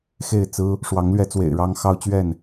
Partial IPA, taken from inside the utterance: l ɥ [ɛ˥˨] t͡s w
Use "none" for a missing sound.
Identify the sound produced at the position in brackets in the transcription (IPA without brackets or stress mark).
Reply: ɛ˨˦